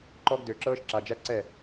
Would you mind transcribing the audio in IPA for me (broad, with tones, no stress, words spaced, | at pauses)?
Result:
ǃɔ˦ɡ dø˧ǁɤː˦ʃ ǁa˧d͡ʒæ˦ǀɛ˦˨